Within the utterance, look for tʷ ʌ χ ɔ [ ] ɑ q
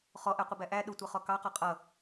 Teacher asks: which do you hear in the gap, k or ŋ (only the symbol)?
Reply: k